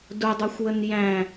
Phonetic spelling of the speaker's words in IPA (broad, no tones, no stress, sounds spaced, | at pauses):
d ʊ dˤ u xʷ w ə n j æ̃